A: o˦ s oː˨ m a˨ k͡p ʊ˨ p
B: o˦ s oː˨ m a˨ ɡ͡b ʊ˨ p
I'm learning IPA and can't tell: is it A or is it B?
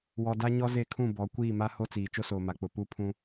A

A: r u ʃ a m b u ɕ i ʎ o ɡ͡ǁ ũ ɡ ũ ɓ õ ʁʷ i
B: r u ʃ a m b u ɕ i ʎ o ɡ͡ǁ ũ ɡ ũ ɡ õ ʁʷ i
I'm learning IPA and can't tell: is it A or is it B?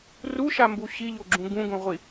B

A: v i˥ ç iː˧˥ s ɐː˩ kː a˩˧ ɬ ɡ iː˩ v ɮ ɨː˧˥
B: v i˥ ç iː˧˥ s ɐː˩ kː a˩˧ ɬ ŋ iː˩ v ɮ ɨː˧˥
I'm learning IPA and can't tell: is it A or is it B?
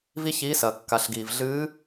A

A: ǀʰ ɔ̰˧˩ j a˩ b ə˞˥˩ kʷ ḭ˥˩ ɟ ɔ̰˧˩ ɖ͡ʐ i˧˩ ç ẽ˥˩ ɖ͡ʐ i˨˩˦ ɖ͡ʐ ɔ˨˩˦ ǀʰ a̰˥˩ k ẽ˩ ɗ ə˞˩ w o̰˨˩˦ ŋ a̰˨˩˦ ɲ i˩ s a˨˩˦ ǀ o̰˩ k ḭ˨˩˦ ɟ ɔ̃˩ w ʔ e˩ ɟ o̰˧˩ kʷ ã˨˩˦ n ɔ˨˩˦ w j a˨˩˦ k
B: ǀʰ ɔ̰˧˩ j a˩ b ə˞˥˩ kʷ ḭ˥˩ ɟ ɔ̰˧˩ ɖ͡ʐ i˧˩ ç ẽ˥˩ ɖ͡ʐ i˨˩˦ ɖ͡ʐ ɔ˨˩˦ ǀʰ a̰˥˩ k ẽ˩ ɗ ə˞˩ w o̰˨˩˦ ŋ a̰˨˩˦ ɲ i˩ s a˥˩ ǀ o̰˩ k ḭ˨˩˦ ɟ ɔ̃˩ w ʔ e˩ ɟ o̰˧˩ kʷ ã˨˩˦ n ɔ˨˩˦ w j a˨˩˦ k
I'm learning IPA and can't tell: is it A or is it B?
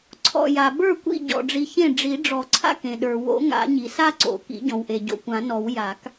B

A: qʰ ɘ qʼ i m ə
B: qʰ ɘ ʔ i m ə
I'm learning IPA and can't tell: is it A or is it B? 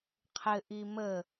B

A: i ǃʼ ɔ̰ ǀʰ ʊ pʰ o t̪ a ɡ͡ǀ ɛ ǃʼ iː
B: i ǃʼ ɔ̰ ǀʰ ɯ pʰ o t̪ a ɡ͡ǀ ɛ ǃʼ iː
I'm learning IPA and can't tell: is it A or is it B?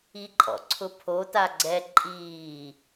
A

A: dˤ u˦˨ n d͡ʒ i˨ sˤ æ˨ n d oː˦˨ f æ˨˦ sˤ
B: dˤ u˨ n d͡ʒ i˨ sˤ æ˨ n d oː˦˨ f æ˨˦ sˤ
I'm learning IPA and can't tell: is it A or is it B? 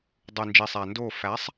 B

